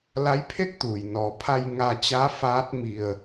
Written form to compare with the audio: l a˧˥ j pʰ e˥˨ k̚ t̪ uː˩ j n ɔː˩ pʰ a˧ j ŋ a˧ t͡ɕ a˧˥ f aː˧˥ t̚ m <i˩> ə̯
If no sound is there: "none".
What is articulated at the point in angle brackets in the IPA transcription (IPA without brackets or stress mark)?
i˩